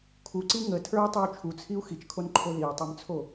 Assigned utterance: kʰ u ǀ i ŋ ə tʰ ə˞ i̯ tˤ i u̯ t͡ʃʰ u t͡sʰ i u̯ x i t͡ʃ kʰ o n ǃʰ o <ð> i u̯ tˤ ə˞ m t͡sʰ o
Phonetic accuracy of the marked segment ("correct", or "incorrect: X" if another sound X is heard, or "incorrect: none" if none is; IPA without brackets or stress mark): correct